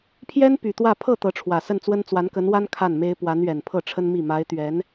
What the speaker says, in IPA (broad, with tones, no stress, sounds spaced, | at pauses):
pʰ j ɛ˥ n p y˨˩ t̪ w ä˥˧ pʰ ɤ˥˩ t̪ ɤ˧˥ ʈ͡ʂʰ w ä˨˩ s ə˥˩ n t͡s w ə˥ n t͡s w a˧˥ n k ə˧˥ n w a˥ n kʰ a˥˩ n m e˥ ɪ̯ p w a˧˥ n ɥ ɛ˨˩ n pʰ ɤ˥˩ ʈ͡ʂʰ ə˥ n m i˥˩ m a˧˥ ɪ̯ t̪ ɥ ɛ˧˥ n